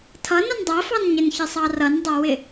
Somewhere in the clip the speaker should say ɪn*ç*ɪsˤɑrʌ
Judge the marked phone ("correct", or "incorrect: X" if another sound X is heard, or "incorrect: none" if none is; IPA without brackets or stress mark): correct